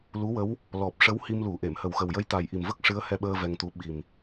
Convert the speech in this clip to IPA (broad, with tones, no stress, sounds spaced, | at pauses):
l u˧˥ w ə˧˥ w | l ɔ˨˩ p̚ ʂ ə˧˥ w h i˧ m l u˨˩˦ ʔ e˨˩˨ m h ə˨˩ w x ə˨˩ w j ə˧˥ j t̪ a˨˩ j ʔ i˨˩ m v ə˦˥ k̚ ʂ ɨ˧˥ ə̯ h ɛ˧ ɓ əː˧ v ɛ˧ ŋ t̪ u˧˥ ɓ i˨˩ m